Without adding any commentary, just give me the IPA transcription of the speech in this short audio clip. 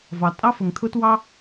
vɑ˩tʼɑ˥ fə˩ŋ t̪ʰʊ˥twɑ˥

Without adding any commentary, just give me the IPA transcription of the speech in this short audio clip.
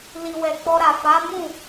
li˨wɛ˨k͡pɔ˧ɾa˨ fa˨˦mũ˦˨

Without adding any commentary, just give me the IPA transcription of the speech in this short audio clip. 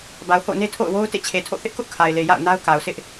ba˨ʊ̯ho̰˦˨ʊ̯ne˦ tʰo̰˦˨ʊ̯wo˦ʊ̯ tḛ˦˨t͡ɕʰe˨tʰo̰˦˨ θɪ˦ʔkʊ˦ʔ kʰa˨ɪ̯le˨ ja̰˦˨ʊ̯na˦ʊ̯ka˨ʊ̯sʰɪ˦ʔ

